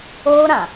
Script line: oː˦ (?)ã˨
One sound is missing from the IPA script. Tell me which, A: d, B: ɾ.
B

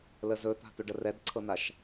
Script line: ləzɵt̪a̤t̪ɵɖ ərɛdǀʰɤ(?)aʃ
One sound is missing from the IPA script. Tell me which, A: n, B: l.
A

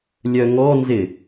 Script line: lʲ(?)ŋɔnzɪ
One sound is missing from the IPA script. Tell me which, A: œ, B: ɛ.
A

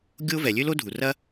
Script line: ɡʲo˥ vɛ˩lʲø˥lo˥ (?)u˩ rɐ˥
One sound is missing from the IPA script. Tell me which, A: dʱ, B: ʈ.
A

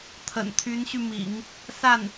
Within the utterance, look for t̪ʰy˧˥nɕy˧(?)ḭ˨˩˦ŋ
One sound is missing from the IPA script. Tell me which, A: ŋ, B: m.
B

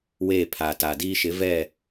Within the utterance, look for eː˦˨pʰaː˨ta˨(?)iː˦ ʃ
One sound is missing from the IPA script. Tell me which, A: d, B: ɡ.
A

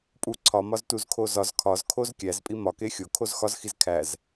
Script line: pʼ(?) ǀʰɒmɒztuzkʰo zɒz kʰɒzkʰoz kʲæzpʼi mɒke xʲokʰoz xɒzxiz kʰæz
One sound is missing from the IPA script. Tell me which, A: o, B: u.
B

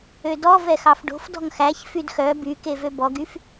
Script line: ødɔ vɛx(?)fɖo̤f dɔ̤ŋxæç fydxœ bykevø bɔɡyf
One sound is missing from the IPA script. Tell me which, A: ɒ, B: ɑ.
B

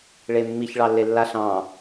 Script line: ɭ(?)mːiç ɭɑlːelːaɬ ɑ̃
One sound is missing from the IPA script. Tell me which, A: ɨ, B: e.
B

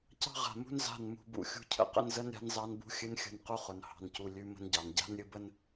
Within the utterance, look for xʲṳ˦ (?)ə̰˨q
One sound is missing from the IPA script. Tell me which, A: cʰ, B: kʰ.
A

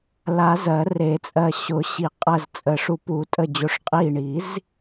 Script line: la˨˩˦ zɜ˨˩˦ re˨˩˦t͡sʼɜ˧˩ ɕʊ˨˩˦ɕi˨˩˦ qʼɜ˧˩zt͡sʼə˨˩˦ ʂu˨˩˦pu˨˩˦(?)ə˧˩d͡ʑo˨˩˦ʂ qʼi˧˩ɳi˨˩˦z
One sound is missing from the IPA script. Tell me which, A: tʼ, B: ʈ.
A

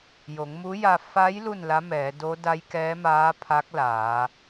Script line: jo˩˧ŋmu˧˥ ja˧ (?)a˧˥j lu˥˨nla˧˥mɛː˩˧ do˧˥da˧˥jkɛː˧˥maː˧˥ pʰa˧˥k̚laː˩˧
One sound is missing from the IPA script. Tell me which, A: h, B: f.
B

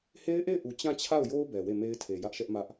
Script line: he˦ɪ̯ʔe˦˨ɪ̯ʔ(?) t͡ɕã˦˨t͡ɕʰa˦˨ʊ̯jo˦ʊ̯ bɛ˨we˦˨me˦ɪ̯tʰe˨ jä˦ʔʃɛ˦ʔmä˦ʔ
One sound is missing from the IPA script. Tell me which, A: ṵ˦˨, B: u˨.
B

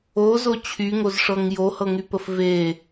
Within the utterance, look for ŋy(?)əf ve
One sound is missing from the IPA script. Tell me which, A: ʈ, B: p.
B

